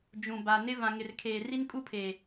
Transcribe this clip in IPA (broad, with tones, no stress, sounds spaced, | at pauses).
d͡ʒ ũ˨ b a˨ n ɪ˦ v ã˨ ŋ ɪ˨ r kʰ eː˨ r i˦ n kʼ u˦ pʰ eː˨